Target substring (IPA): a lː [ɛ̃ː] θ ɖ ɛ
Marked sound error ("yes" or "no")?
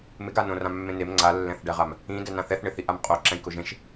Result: yes